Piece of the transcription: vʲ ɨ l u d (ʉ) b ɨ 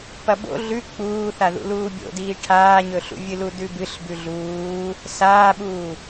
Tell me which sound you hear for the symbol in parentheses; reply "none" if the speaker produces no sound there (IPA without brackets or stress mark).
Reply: ʉ